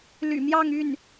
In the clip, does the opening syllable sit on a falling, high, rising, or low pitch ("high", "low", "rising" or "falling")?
low